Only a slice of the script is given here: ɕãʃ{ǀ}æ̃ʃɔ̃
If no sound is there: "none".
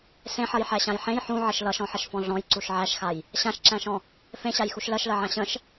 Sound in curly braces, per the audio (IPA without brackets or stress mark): ǁ